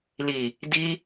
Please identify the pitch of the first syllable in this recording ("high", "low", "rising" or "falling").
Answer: low